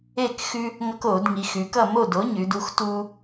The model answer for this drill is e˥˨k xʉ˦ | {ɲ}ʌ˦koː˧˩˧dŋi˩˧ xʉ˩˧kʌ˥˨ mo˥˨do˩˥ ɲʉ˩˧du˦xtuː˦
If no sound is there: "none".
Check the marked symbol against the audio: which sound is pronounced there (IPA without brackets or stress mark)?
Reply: ŋ